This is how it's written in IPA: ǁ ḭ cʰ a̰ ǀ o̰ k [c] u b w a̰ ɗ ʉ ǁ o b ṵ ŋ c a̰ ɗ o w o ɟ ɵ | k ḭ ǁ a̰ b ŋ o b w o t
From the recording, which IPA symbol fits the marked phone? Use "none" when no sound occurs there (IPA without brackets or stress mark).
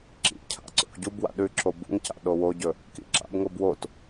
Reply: ɟ